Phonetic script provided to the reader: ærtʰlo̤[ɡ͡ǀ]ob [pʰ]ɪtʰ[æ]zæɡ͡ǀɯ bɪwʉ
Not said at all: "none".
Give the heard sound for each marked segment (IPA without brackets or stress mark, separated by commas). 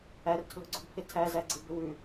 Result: ɡ͡ǀ, pʰ, æ